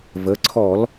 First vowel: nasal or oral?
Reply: oral